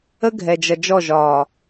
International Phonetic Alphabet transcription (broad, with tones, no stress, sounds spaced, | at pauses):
ə˦ ɡʱ ɛ˨ d͡ʒ ʌ˨ d͡ʒ ɔ˦˨ ʒ ɒː˨